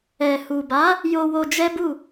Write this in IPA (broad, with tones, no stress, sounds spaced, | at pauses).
ɛ˨ h u˨ b a˨˦ | j o˧ w o˧ d͡ʒ ɛ˦ b u˦˨